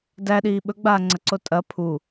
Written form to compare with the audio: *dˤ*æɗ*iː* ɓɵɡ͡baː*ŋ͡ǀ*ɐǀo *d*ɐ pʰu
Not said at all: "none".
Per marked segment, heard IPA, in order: d, iː, ŋ͡ǀ, tʼ

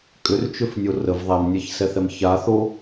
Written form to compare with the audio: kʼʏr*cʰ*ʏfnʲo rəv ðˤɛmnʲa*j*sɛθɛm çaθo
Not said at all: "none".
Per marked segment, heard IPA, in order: t͡ʃ, ç

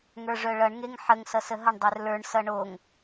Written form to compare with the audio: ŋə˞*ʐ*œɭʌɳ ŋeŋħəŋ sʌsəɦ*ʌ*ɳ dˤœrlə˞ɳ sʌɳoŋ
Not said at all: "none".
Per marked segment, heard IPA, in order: ʐ, ʌ

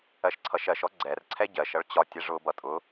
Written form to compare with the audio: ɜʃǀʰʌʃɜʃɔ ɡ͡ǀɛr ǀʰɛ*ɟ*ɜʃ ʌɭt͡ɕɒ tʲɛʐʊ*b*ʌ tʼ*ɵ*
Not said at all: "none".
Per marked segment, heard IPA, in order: ɟ, b, ʊ

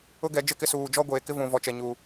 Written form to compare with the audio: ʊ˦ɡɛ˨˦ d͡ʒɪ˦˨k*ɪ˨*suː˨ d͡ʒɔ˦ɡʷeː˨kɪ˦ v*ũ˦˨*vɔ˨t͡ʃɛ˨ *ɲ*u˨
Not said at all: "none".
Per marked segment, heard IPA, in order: ɪ˦, ũ˨, ɲ

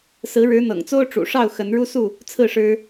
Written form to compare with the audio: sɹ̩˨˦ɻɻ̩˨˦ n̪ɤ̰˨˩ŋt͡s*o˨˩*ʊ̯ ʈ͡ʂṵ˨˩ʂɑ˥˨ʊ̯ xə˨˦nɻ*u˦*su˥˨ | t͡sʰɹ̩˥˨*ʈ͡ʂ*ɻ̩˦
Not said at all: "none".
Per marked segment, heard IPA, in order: o˦, u˦, ʂ

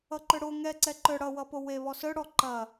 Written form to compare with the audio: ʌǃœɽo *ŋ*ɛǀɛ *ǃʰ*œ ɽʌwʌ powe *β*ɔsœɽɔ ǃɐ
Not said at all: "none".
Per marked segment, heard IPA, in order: ŋ, ǃ, β

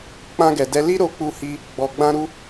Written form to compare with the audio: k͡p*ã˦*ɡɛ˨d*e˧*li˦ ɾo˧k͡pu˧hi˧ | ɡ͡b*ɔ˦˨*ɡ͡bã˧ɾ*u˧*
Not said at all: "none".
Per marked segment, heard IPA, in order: ã˧, ɛ˧, ɔ˨, u˧

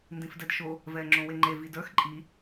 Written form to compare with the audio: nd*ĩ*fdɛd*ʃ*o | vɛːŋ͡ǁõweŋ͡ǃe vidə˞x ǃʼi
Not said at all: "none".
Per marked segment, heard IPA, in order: ĩ, ʃ

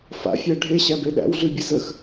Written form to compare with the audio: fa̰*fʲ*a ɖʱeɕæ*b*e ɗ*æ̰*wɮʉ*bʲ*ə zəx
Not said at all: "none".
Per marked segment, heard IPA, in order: fʲ, b, æ̰, bʲ

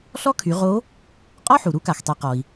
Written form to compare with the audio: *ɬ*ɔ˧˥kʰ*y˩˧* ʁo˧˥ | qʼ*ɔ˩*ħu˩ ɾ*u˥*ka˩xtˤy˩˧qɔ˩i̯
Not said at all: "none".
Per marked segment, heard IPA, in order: ɬ, y˩˧, ɔ˥, u˧˥

